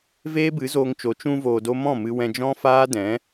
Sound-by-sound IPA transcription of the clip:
v eː˦ b ɨ˨˦ z oː˧ ŋ t͡ʃ o˨˦ t͡ʃ ũ˧ v oː˨ d o˧ m ɔ̃˦˨ m ɨ˧ w ɛ̃˧ d͡ʒ ɔ̃˦ f aː˦ d ɛ̃˨˦

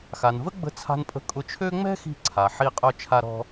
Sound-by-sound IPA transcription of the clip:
x a˩ n v ə˥ ɡ͡b ə̤˧ t͡sʰ a̤˧ n pʼ ə̤˧ kʼ ʊ˧ t͡ʃʰ ø˥ ŋ͡m ɛ̤˥ x i̤˧ ǀʰ a˩ ħ i˧ qʼ œ˧ t͡ʃʰ a˧ ɾ ɔ̤˧

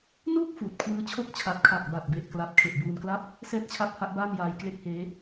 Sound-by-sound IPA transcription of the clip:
n uː˥˩ k̚ f uː˨˩ t̚ kʰ w ɯː˦˥ t͡ɕʰ o˥˩ k̚ t͡ɕʰ a˨˩ t̚ kʰ a˨˩ k̚ b a˨˩ t̚ b e˨˩ ʔ k l a˦˥ p̚ kʰ e˨˩ ʔ b uː˧ n k l a˥˩ p̚ | s ɛː˥˩ t̚ t͡ɕʰ a˦˥ p̚ h a˦˥ ʔ b aː˥˩ n j aː˧ j k l e˦˥ k̚ h eː˦˥

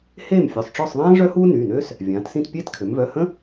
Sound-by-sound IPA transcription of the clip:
h eː˥˨ m fʲ œ˩˧˩ sˤ ʈ͡ʂ ɔ˥˨ sˤ ðˤ ãː˥ ʐ œ˥ h uː˥ n yː˩˧˩ n øː˥ s | vʲ ãː˩˧ t s ĩ˥˨ t pʲ eː˥ t kʰ ø˩˧ m v œ˩˧˩ h ə̃˥

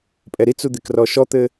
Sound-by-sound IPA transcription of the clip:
pʼ ɛ ɾ i t͡s u d̪ e k r ɔ ʃ ɔ t̪ ɘ

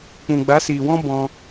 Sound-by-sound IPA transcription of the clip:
k͡p ũ˨ ɡ͡b a˨˦ s iː˨ w ɔ̃˦ b ɔ̃˦

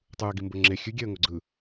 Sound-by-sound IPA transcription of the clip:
tˤ ɯ ə̯ ɡ i m b o ŋ͡ǁ e xʲ ʉ ɡʲ ɛ ə̯ ŋ o ɡ͡ǀ ɯ

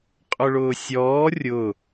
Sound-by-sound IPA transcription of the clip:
qʼ ʊ ɭ ʊː sʲ ɔː rʲ ʊ

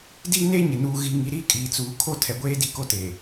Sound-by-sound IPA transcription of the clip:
d i˦ n e˦ ɲ ɪ˨ n uː˨ ɣ i˨ ŋ i˨ ɾ iː˦ kʼ iː˨ t͡s uː˨ kʰ o˦ tʰ ɛ˨ ɡʷ eː˦ d i˦ k o˦ t eː˨

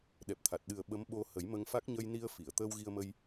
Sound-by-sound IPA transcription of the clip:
ɗ ɛ˨˩ p̚ t̪ʰ a˨˩ t̚ ɗ ɨ˨˩ ə̯ ɓ ə˧˥ m ɓ o˧ h ə˨˩˦ j m ə˧ ŋ f a˦˥ k̚ ɲ ə˧ j n i˧ ə̯ f i˨˩˨ ə̯ t̪ əː˧ w ɣ i˧ ə̯ m ə˧ j

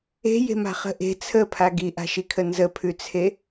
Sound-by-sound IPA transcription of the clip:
e̤ j e̤ m a̤ χ ə̤ ʔ e̤ t͡sʰ ə pʰ a ɡ i ʔ a̤ ʃ i kʰ ə n z ə pʰ ʉ t͡sʰ e

